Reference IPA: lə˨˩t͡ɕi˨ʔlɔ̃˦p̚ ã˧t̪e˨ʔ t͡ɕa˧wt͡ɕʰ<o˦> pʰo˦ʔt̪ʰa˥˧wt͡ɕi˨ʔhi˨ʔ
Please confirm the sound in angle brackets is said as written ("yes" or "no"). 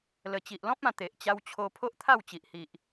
no